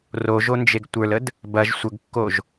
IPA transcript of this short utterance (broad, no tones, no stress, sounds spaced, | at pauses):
r o ʒ o n d͡ʒ e ɡ tʷ ə˞ l ə d | b ɐ ʒ sʷ ə ɡ kː o ʒ